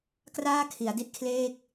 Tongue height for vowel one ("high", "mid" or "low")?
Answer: low